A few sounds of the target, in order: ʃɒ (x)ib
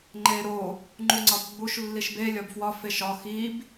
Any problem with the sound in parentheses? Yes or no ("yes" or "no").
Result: no